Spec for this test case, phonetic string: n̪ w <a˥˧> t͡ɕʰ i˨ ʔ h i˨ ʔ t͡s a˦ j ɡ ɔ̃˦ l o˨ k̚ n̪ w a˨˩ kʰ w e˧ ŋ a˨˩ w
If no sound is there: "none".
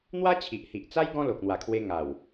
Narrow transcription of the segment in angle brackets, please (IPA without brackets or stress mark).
a˦